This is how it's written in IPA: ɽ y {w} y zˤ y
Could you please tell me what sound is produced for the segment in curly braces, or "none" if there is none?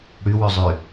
w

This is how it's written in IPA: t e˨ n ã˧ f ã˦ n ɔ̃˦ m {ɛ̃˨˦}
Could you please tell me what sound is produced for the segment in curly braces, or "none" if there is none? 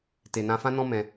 ɛ̃˧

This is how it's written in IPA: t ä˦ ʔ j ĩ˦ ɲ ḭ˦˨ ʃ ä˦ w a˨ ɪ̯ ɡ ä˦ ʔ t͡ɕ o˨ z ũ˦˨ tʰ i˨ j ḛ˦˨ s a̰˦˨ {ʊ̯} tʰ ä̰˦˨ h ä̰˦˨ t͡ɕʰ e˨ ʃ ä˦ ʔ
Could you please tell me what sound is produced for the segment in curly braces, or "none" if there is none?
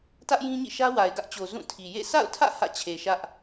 ʊ̯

